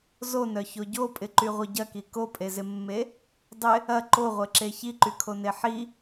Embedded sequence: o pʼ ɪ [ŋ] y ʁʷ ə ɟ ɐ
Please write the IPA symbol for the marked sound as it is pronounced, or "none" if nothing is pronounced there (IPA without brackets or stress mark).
ǃ